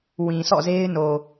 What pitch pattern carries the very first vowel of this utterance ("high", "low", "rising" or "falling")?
low